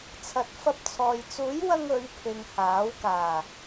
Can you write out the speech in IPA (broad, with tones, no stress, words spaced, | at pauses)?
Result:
t͡sʰɐ˨t̚ fɐ˧p̚t͡sʰɔː˨j t͡suː˨˥jwɐ˧ŋ ɵ˨˧ɥpʰɪ˨ŋ haː˨˥wkaː˨˩